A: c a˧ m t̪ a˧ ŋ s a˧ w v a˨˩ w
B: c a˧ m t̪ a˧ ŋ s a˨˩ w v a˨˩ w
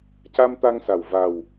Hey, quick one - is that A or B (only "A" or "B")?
B